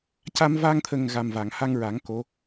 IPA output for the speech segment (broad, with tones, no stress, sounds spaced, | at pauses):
c a˧ m v a˧ ŋ t̪ʰ ə˨˩ ŋ ɣ a˨˩ m v a˨˩˨ ŋ h a˧ ŋ ɹ a˨˩˦ ŋ k o˧˥